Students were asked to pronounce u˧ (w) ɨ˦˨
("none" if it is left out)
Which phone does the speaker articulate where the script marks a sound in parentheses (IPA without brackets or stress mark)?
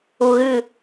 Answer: ɣ